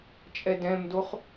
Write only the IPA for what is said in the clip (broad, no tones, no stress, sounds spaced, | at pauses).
t͡ʃʼ ɛ d ɛ̃ m d o χ